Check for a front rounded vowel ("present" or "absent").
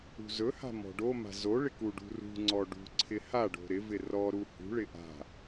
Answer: absent